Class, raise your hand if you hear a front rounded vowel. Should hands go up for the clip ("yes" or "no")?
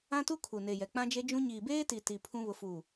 no